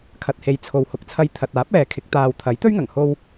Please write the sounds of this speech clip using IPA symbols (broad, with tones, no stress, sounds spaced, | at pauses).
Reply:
kʰ ɐ˨ t̚ h e˨˧ j t͡sʰ o˨ w h ʊ˨ k̚ t͡sʰ ɐ˧ j t̪ʰ ɐ˨ t̚ aː˨˥ p̚ ɛː˨ kʰ ɪ˨˥ k̚ t̪ aː˨ w t̪ʰ ɐ˨˥ j t̪ ɵ˥ ɥ ŋ ɐ˨˩ ŋ h o˧ w